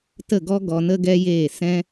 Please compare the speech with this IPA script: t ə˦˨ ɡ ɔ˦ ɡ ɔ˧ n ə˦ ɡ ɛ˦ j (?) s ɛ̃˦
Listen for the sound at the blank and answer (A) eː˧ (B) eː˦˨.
B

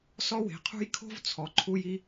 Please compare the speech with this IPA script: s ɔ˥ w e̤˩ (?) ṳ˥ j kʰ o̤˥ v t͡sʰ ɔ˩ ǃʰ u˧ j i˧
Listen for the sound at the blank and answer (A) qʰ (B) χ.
A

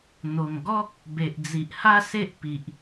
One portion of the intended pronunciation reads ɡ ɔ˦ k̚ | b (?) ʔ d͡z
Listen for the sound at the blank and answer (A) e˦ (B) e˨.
B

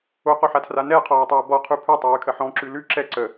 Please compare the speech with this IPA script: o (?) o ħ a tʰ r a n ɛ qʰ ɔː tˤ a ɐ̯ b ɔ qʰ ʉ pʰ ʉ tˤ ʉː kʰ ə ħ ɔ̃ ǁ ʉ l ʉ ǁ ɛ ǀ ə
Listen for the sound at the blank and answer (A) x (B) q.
B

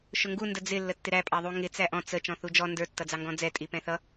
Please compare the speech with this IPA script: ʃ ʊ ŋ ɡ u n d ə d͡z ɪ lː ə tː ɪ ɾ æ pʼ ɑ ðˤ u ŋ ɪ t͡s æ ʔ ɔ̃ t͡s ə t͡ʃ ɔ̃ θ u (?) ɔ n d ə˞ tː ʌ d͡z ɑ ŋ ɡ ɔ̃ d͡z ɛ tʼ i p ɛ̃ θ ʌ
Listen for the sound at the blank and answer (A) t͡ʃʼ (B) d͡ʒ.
B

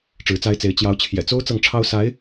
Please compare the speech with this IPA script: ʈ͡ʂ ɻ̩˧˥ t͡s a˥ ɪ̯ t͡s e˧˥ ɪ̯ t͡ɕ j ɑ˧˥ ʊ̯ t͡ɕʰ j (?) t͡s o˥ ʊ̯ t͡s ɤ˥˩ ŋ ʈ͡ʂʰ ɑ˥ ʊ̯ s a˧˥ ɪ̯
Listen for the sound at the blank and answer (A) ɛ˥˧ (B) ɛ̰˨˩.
B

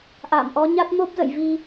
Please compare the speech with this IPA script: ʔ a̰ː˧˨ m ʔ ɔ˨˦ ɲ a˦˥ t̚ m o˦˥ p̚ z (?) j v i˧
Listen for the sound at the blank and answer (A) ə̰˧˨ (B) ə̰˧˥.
A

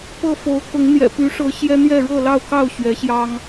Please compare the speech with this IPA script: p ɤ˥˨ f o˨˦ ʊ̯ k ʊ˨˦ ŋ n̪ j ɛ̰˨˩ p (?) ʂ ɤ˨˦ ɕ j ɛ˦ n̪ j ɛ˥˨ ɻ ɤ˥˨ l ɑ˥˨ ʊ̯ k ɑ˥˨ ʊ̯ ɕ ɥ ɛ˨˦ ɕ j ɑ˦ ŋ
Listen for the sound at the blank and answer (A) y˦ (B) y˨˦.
B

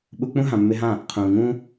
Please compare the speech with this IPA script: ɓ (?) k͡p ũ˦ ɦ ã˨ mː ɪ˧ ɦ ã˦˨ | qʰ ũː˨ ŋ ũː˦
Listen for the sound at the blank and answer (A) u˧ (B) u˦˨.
A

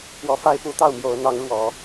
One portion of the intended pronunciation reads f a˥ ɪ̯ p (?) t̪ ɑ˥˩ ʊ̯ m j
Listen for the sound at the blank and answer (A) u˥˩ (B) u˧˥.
B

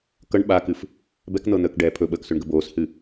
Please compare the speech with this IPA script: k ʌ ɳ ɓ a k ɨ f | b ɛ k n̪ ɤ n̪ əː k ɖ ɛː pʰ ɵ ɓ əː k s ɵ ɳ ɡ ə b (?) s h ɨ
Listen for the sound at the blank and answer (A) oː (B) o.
A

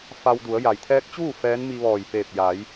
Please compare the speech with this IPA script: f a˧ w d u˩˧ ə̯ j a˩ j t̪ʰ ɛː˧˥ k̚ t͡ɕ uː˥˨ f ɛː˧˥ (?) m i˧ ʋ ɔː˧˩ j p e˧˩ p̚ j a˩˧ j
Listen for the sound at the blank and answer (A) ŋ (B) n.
B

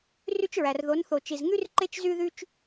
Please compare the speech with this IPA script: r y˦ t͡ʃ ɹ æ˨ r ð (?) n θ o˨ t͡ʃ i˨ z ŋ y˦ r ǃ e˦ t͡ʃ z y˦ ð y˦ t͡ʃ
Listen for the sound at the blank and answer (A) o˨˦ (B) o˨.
A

